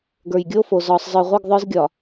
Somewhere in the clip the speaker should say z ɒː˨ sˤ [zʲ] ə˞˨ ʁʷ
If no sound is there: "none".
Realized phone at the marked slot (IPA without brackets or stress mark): zˤ